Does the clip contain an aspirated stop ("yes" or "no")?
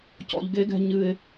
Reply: no